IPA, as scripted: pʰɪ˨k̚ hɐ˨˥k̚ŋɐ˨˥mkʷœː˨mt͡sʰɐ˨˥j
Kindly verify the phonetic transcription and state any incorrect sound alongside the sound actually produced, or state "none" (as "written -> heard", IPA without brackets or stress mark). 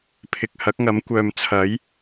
none